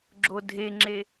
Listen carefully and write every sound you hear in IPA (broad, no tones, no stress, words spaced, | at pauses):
ɡ͡ǁodʱeŋ͡ǁe